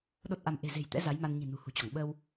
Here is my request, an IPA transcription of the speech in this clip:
ɗo˦˥t̚ʔa˧m ʔe̤˨˩ze̤˨˩j t̪ɛ̰˧˥ za˨˦j ma˧n ɲi̤˨˩nṳ˨˩hṳ˨˩t͡ɕɔ˧˩ŋ ɓə˧w

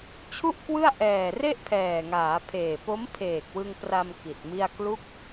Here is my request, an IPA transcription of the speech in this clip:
t͡ɕʰu˥˩ʔkwɯ˥˩a̯ ʔɛː˨˩ re˥˩ʔpʰɛː˨˩ŋaː˩˦pʰeː˨˩ po˦˥mpʰeː˨˩k̚wɯ˧ŋpra˧m ki˨˩t̚mi˥˩a̯ klu˦˥k̚

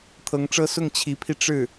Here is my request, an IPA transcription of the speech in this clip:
t̪ʰɤ˧˥ŋʈ͡ʂɤ˥ sʊ˥˩ŋ t͡ɕʰi˧˥pʰi˧ ʈ͡ʂɻ̩˥˩

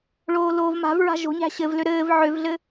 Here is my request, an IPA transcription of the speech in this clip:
ɭoːloːvma̤vɹa̤ ʒo̤ɲæ̤ ɕɘvlø ɾɘːv ʕøvɮɘ

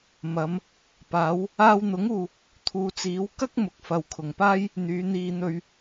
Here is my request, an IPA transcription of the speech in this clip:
mɐ˨˧m | paː˨˧w | aː˧wn̪ʊ˨˥ŋuː˨ | t̪ʰuː˨t͡siː˨˥w kɐ˥k̚ mʊ˨˥k̚fɐ˨wkʰʊ˨˩ŋpaː˥j | n̪yː˨˧n̪iː˧n̪ɵ˧ɥ

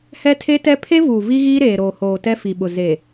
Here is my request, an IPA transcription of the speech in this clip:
hɛ˦tʰe˦tɛ˦ pʰe˦vuː˨ vi˦ɣiː˦ ɾeː˨ɾoː˨hoː˨ tɛ˦fi˨ɓʊ˨ ze˨

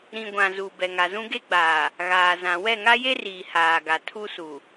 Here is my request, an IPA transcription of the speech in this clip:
ɾĩ˨ ɡʷã˨zu˨ bɛ˨ŋa˨zũ˦ ɡe˦ɡ͡baː˨ | ɣaː˨zã˨ wɛ˦˨ŋa˦je˦riː˨ haː˨ɡa˨ tʰu˦su˨

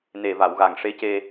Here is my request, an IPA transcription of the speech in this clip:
ne˨˩va˨˩˨wɣa˨˩ŋʂe˧˥ ce˧

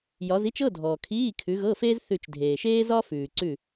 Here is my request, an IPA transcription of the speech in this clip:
jɒ˨˦zi˥t͡ʃɤ˧˥˧dʱɔː˩ kʰiː˧˥˧kʰʉ˨˦ɣɤ˧˥˧feː˥z θʉ˧˩t͡ʃdʱeː˩ʃeː˥zɒ˥ fʉː˩ǀʉ˥˩

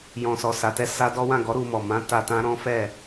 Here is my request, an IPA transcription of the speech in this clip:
jɔ̃˨sɔ˨sa˨tɛ˧ sa˦dɔ˦ wã˦˨ɡɔ˨˦ ɾu˧mɔ˨ mã˨˦ ta˧tã˦ ɾɔ̃˦fɛ˦˨

